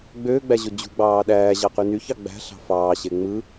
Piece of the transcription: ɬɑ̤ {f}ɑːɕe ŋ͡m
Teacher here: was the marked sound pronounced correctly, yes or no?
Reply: yes